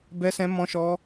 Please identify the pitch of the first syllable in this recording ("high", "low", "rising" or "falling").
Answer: high